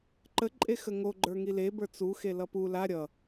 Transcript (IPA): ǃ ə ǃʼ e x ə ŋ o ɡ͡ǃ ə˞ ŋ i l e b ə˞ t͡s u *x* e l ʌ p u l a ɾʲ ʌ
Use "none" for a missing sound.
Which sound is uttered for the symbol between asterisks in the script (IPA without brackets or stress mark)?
x